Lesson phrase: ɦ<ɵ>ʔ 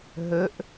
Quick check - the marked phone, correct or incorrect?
incorrect